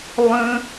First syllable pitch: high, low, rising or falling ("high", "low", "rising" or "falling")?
high